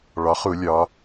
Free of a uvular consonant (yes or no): no